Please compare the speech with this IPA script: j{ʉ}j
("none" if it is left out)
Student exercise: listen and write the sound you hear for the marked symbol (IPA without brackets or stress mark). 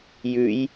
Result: ʉ